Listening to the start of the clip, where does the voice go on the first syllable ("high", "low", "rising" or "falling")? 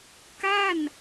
falling